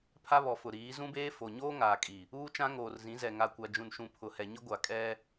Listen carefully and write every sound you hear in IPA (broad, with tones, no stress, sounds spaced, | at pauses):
pʰ a˦ β ɔ˨ f ʊ˨ ɾ iː˨˦ z ũ˦ b eː˦ f o˨ ɲ oː˦ ŋ aː˨ kʼ i˨ | uː˦ t͡ʃ ã˦ ŋ oː˨ r z ĩ˨˦ z ɛ˨ ŋ a˨ kʷ a˨ d͡ʒ ũ˨ n ʃ ũ˨ pʰ ʊ˨ h ɛ˨ ɲ ɪ˦ ɡʷ a˨ kʼ ɛ˦